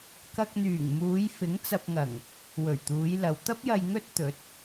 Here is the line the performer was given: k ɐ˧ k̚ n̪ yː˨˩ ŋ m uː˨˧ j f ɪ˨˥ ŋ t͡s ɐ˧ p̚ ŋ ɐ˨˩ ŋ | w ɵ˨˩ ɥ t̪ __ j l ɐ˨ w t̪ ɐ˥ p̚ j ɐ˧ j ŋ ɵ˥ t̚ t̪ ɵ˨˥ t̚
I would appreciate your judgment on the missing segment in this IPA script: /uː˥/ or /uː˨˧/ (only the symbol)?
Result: uː˨˧